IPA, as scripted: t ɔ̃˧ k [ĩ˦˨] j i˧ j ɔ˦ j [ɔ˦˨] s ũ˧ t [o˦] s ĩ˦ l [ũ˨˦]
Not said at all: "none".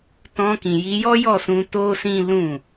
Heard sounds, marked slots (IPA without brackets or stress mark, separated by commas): ĩ˨, ɔ˦˨, o˦, ũ˦˨